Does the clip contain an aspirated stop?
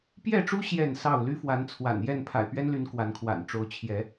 yes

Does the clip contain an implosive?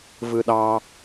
yes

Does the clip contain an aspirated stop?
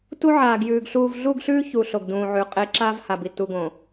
no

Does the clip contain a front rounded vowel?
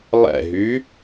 yes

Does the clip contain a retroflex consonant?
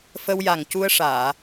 yes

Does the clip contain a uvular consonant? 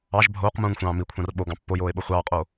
yes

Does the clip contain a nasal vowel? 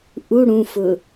yes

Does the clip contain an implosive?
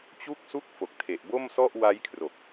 no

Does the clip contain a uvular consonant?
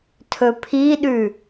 no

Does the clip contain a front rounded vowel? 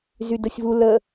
yes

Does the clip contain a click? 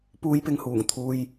no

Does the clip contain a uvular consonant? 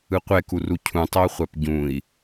yes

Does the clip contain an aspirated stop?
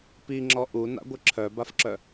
yes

